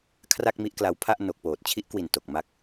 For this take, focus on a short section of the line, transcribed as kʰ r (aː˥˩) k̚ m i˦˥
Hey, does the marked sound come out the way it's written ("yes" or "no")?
no